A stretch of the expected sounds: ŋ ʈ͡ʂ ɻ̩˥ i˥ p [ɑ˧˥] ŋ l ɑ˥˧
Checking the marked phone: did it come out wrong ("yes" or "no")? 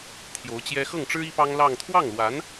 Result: yes